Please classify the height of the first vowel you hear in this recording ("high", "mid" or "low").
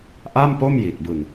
low